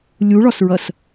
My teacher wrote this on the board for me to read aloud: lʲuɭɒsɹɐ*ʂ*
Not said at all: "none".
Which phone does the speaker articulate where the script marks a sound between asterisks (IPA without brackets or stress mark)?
s